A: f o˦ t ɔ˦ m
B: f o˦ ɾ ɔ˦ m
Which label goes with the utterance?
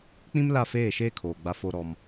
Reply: B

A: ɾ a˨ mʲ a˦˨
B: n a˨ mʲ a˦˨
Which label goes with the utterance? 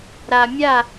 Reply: A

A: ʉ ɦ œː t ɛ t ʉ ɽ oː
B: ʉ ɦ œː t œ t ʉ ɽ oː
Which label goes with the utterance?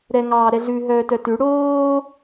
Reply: B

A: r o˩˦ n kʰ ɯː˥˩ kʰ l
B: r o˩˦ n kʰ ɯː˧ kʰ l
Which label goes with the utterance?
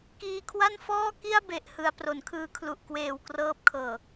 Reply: B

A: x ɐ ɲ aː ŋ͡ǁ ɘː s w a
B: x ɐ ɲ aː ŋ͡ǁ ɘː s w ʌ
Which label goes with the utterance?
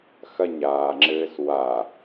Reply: A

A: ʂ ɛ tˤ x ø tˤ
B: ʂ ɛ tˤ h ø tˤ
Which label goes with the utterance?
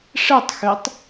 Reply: A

